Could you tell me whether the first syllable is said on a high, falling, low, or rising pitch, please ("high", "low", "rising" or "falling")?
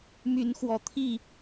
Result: rising